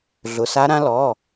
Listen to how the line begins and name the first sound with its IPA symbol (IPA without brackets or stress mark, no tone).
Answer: ɮ